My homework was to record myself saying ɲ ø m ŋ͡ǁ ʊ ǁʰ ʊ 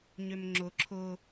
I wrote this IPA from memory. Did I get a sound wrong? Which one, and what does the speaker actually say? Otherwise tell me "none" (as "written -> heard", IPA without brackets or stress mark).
none